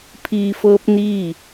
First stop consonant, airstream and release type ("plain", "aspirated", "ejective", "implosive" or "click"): aspirated